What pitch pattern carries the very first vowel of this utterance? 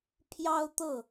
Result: high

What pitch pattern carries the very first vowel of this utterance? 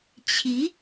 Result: rising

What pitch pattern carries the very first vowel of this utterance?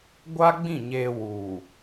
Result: high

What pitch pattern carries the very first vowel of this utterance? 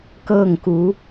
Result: falling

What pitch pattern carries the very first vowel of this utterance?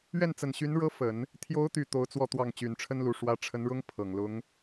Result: falling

